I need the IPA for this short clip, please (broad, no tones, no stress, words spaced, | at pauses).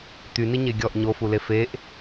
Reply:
t̪yniɲe ɡʲɔʔ ɲofule feʔ